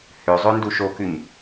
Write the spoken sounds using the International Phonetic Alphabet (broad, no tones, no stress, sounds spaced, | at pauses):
h ø zˤ ø n d u ʃ o k ʉ ɲ